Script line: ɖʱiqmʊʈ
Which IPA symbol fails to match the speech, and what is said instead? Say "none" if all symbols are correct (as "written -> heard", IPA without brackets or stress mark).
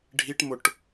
q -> ʈ